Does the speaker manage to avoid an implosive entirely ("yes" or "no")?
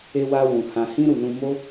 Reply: yes